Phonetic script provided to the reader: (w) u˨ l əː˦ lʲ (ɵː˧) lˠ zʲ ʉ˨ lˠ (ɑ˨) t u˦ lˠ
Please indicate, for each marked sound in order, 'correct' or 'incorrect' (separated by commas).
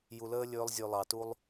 incorrect, correct, correct